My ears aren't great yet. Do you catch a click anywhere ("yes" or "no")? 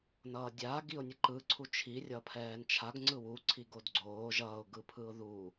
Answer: yes